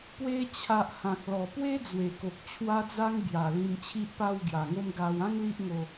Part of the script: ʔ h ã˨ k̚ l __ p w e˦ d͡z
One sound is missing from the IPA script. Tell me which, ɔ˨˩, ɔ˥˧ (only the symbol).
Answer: ɔ˨˩